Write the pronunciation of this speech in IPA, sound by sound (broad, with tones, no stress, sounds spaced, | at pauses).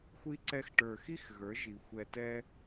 xʷ i˧ ǀ ɛ˧ x ʈ ə˞˨ x i˦ x ɣ ə˞˨˦ ʒ i˨ xʷ ɛ˧ t ɛ˦